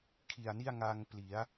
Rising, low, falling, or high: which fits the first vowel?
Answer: low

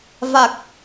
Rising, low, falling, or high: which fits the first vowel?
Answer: low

